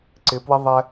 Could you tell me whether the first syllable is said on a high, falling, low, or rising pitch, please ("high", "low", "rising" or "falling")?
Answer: rising